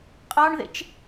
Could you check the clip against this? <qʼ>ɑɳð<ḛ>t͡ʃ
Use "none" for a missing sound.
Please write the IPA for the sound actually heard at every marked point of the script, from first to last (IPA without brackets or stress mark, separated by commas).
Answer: qʼ, ḛ